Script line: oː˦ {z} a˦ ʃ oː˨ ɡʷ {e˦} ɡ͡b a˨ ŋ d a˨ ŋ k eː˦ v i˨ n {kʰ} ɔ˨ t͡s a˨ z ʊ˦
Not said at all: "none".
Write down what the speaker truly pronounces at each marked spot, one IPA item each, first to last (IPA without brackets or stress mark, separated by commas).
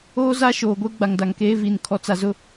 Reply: z, e˦, kʰ